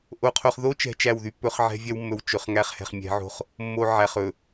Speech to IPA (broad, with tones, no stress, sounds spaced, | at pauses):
ʔ o˦ qʰ o˦ χ ð o˦ t͡ʃ ɛ̤˨ t͡ʃ æ˦˨ w ð y˦ pː ɵ˦ χ ʕ ɛ̤˦ vʲ ɛ˦ w mː ɵ˨ w t͡ʃ ɵ˨ χ ŋ æ˦ χ h ɛ̤˨ χ mʲ ɛ̤˨˦ ʕ o̤˦ χ | mː o˦ ʕ æ˨ χ ɵ˨